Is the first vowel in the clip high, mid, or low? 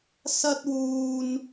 low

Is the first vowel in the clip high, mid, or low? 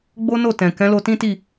mid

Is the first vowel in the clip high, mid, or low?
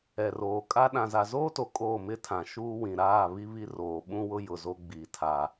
mid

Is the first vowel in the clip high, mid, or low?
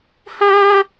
low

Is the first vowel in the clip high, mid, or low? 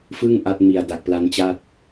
high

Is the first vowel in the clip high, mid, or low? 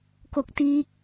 mid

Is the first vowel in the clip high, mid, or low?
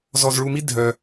mid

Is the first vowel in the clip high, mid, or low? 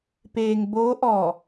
mid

